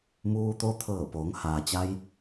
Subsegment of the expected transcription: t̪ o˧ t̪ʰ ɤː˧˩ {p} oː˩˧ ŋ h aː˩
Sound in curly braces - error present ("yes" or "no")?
no